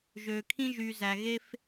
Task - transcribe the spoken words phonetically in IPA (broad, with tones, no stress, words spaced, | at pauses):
ʒøː˨kʰĩ˧ ʒyː˨ zæ˨ ɣe˧f